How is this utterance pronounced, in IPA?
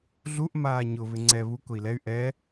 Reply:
ɮ u ʔ m aː ɲ ʊ β ɪ ŋ͡ǀ ɛ β u k ʊ i̯ l ɛ y̯ ʔ ɛ

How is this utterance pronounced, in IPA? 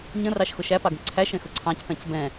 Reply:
ɲ ə̃ r ɑ ʃ x ʊ ʃ æ p ɑ ɡ ə̃ ǀʰ æ ʃ ɛ̃ x ʊ ǀʰ ɑ̃ c p ɛ̃ c b ɛ̃

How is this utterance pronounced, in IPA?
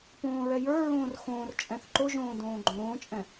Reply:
p õː ɹ ɛ j ə˞ ɹ õː r x õː r t͡ʃʼ ɛ̃ θ ǃ o ʒ õː d õː ɡ͡ǃ õː t͡ʃʼ ɛ̃

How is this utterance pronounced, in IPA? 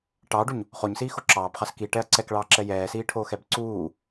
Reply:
ʈ ɑː ɖ u ɲ | χ o ɲ s iː x o ǁ ɑː b χ ɑ s k i ʈ ɛ ɐ̯ ǀ ɛ k ɭ ɑː ǁ ɛ j ɛː s iː ʈʰ oː x ɛ b ǀ uː

